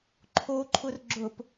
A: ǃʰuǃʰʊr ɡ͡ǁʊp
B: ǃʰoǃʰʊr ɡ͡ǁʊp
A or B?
B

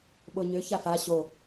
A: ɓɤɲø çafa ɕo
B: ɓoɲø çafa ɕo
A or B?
B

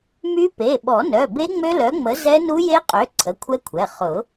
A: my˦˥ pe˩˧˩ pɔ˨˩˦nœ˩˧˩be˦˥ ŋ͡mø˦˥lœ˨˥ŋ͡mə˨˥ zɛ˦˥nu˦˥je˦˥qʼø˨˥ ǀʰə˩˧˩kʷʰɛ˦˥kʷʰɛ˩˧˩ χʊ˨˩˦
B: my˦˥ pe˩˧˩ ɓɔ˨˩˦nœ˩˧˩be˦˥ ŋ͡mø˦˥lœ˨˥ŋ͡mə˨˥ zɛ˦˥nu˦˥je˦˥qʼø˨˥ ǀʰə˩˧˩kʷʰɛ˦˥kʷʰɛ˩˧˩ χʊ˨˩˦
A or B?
B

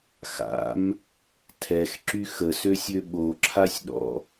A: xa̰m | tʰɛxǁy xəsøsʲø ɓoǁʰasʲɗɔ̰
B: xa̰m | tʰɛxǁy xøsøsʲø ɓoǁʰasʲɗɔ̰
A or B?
A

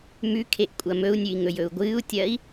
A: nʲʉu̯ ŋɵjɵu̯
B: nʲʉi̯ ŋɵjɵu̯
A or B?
B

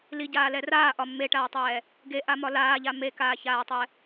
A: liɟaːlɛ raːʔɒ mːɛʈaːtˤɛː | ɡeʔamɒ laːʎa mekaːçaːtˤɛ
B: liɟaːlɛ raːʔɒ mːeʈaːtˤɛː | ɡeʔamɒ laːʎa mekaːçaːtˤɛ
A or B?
B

